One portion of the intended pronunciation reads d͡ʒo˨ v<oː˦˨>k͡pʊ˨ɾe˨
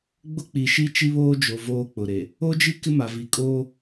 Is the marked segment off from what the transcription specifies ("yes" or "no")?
yes